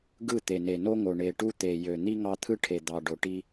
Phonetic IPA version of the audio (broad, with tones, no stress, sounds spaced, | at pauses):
ɡ ɯ˦˨ t̪ e˨ n e˨ n o˦ ŋ o˨ ɳ e˨ ʈ u˦ t̪ e˨ j ø˨ n̪ i˦ ŋ ɑ˦ t̪ʰ ɯ˦ ʈʰ e˨ d̪ ɑ˨ ɖ o˨ ʈ i˦